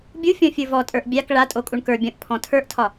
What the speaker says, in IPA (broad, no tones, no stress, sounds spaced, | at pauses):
bʲ u fʲ ɔ̃ fʲ ə˞ v ɔ tʼ ə˞ ʔ bʲ a k ɭ a tʼ o kʼ u ɳ k ə˞ bʲ ɔ̃ ʔ pʰ ɔ̃ tʰ ə˞ ʔ tʰ ɒ